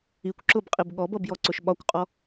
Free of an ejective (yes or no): no